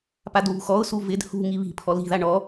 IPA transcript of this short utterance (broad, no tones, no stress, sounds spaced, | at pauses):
p a d β ṳ x ɔ ʊ̯ s u v ɪ d h ṳ ŋ i β i̤ pʰ ɔ l i̤ ð a ɳ ɔ